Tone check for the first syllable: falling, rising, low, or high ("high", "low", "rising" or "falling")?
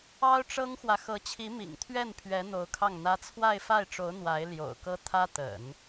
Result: high